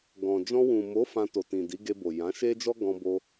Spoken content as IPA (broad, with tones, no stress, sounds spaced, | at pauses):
ɡ ɔ̃˨ d͡ʒ ɔ̃˧ w ũ˨ m o˨˦ f ã˧ t o˨ t ĩ˨ d i˨˦ ɡ e˧ b o˨ j ã˨˦ ʃ e˦ d͡ʒ ɔ˦ ɡ ɔ̃˧ b o˧